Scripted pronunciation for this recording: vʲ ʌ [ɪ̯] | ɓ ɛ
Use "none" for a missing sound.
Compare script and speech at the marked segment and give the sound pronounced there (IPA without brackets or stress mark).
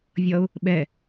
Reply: ʊ̯